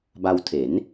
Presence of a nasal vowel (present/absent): absent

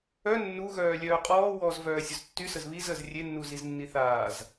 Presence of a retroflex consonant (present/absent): absent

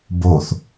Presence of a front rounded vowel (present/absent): absent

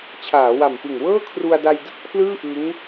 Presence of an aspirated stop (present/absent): present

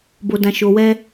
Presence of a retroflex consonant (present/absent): absent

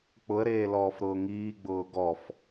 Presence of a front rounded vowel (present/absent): absent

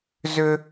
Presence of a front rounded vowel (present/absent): present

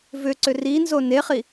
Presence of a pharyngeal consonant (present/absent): absent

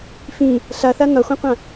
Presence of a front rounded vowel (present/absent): absent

